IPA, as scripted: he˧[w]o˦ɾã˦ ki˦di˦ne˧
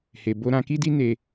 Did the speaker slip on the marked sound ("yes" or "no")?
yes